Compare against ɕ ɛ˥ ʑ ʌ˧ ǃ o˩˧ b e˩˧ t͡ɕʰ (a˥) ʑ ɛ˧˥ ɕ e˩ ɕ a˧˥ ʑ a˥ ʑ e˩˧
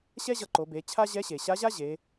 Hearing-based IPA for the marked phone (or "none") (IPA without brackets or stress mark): a˥